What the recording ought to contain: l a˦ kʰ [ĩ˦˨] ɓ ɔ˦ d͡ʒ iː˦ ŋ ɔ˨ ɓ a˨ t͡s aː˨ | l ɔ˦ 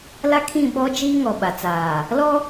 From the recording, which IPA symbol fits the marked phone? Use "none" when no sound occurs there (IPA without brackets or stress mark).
ĩ˦˨